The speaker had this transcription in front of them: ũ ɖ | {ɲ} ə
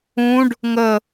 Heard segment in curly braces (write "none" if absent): ŋ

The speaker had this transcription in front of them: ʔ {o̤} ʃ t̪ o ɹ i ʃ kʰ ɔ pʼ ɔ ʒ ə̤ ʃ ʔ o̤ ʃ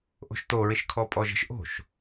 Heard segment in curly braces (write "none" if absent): o̤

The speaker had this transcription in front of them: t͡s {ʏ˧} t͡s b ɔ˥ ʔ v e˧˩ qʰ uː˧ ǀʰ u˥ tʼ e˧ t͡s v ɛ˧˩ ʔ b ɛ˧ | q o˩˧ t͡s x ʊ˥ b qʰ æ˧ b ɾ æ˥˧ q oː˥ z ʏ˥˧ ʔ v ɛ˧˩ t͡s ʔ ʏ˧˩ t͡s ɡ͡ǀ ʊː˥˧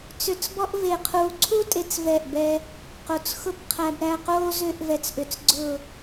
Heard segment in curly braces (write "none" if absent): ʏ˧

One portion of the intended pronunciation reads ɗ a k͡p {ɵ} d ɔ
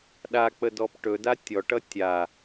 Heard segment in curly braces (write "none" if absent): ə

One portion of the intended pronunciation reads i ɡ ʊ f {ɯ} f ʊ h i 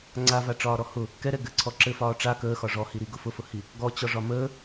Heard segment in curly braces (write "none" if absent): ʊ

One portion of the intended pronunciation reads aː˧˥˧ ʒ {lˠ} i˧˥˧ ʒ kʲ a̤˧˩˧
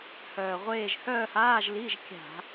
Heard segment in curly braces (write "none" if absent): l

